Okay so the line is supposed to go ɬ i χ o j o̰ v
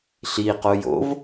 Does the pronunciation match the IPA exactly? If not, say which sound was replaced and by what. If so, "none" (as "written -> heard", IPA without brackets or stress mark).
χ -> q